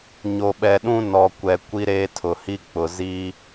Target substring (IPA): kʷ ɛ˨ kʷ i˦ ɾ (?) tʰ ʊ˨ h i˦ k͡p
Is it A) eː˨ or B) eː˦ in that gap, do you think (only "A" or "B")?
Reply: B